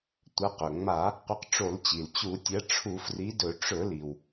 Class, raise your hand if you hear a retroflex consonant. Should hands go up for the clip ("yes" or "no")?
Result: yes